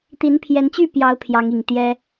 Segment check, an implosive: absent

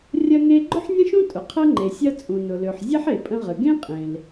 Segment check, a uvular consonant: present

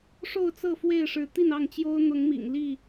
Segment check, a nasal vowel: absent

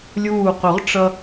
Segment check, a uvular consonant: present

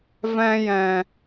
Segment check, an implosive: absent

